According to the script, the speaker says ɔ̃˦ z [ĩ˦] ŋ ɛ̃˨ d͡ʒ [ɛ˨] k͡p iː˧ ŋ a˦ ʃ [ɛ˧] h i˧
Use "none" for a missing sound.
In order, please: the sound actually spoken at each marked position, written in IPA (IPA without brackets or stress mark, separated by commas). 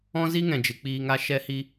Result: i˦, ɨ˨, ɛ˧